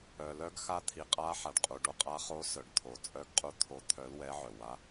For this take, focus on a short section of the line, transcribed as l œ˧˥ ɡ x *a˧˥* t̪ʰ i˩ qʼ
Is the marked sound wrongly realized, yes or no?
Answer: no